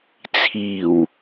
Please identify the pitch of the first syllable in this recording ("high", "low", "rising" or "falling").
low